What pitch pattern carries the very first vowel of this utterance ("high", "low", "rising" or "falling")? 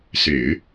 low